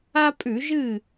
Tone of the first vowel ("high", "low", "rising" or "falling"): high